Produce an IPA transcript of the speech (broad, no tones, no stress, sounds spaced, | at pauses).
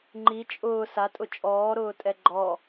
ŋ͡ǃ i t͡ʃʼ ʊː s a tʼ ʊ t͡ʃʼ ɔː ɾ ʊː tʼ ɛ ɡ͡ǃ ɔ